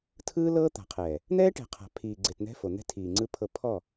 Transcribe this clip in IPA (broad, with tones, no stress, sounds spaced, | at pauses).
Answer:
tʰ ɯː˦ l ɤː˦ t̪ a̤˨ qʰ ɛː˨ | n̪ ɛː˦ ʈ ɛ̤˨ qʰ a̤˨ pʰ iː˨ ɡ͡ǀ e˨ t n̪ ɛ̤˦ f o˨ n̪ ɛ̤˦ tʰ iː˨ ŋ͡ǀ ɯ˦ pʰ ɤ˦˨ pʰ ɔ˦˨